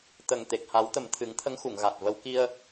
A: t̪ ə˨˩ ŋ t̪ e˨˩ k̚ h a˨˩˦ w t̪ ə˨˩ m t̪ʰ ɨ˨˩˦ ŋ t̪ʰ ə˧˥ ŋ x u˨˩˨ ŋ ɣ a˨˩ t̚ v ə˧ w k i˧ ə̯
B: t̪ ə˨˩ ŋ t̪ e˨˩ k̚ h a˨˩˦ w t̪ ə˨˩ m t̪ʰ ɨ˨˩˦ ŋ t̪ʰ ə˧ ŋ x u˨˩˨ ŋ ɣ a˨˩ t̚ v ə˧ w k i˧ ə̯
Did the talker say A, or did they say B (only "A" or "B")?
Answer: A